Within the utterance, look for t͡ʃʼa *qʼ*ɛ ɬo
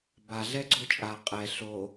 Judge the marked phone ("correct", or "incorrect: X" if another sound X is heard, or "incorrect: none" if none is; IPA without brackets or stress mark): correct